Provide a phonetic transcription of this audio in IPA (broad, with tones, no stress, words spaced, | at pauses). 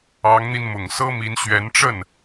ɑ˧˥ŋn̪i˧n mʊ˨˩ŋsɤ˥mi˧˥nɕɥɛ˧˥n ʈ͡ʂə˥˩n